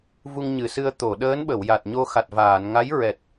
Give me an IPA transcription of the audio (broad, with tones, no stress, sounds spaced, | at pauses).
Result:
v u˧ ŋ ɲ ɨ˨˩˨ s ɨ˧ ə̯ t̪ o˨˩˨ ɗ əː˧˥ n ɓ ə˨˩˨ w j a˨˩ t̚ ɲ o˧ x a˨˩ t̚ v aː˨˩˨ n ŋ a˧˥ j ɹ ɛ˨˩ t̚